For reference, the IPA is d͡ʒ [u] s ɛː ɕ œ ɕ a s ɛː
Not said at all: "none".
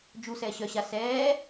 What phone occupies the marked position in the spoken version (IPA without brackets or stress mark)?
u